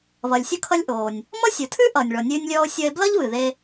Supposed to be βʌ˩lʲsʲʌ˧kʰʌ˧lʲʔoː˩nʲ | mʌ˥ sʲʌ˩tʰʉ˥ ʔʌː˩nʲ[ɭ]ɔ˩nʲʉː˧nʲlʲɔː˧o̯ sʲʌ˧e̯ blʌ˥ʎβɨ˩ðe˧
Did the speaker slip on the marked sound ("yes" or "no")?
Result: no